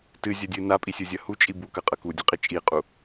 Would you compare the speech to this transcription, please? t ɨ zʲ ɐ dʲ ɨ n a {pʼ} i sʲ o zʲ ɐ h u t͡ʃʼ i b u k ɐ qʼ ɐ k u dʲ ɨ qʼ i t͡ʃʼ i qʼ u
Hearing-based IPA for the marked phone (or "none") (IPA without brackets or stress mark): pʼ